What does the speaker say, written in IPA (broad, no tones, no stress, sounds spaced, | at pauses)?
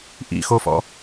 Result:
ʔ ḭ x o f ɔ̰